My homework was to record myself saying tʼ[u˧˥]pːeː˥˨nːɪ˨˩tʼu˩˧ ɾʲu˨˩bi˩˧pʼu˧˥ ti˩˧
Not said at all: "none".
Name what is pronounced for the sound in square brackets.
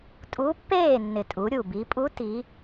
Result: u˧˥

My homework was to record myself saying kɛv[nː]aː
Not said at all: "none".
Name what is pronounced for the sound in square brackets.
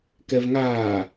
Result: ŋ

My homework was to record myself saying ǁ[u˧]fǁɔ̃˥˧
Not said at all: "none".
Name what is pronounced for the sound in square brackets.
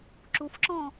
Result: u˧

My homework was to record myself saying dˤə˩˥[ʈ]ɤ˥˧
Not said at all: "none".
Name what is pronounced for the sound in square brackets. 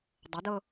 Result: d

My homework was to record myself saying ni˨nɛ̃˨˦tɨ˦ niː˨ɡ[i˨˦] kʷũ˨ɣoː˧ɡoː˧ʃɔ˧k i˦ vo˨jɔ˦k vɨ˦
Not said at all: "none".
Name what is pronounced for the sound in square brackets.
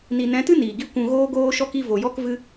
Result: i˦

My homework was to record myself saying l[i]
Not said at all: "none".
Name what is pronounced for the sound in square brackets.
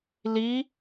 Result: i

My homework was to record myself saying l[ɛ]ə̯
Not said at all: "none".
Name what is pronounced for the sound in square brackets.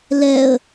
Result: ɛ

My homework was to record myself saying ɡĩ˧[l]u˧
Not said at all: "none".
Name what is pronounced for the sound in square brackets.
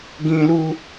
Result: l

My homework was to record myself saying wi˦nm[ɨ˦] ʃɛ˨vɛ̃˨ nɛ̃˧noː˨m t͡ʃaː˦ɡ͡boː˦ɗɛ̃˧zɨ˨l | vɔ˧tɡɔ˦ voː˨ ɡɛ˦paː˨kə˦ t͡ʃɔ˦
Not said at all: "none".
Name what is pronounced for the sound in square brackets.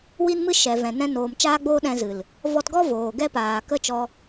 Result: ɨ˦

